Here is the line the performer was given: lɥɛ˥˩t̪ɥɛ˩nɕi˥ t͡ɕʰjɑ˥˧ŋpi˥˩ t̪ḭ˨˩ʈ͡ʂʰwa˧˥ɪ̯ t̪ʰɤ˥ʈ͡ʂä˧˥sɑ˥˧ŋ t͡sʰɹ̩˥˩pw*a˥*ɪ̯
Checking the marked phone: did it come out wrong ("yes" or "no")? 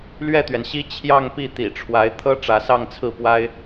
no